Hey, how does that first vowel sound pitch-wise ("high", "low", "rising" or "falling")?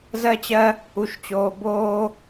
high